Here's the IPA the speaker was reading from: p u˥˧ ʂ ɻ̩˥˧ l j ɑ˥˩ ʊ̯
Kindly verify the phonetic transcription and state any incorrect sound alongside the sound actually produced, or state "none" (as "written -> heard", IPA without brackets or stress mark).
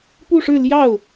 none